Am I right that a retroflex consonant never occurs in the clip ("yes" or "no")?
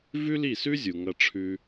no